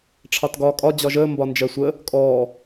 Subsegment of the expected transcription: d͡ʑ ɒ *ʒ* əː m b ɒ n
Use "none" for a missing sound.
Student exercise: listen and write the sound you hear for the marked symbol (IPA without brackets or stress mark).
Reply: ʒ